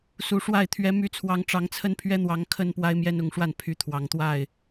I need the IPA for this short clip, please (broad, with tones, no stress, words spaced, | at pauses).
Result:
su˨˩ʂwa˥˨ɪ̯ t̪ʰɥɛ˨˦ my˨˦t͡sʰwɑ˨˦ŋ ʈ͡ʂɑ˨˦ŋt͡sʰə˦npʰɥɛ˦n̪wɑ˨˦ŋ kʰə˦n pwa˦ɪ̯mjɛ˦nʊ˨˦ŋʂwa˥˨n pʰy˨˦t̪ʰwɑ˨˩ŋt̪wa˥˨ɪ̯